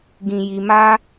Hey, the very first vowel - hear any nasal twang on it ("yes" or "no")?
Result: yes